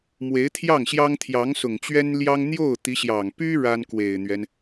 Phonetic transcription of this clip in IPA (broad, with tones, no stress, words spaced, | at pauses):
mwe˧˥ɪ̯t̪ʰjɑ˥˩ŋɕjɑ˥ŋt̪ʰjɑ˧˥ŋ sʊ˨˩ŋt͡ɕɥɛ˥n ljɑ˥ŋ n̪jo˥˩ʊ̯ t̪i˧˥ɕjɑ˨˩ŋ py˥ ɻa˥nkwe˨˩ɪ̯n̪ɥɛ˦n